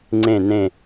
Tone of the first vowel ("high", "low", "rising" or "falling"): falling